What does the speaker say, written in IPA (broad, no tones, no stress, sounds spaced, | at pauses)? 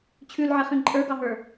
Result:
t͡ɕʰ ʉ l ʕ e χ ĩ ǃʼ ə˞ ɡ ɑ ɦ ə˞